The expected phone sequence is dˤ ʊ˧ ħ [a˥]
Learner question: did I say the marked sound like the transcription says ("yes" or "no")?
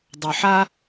yes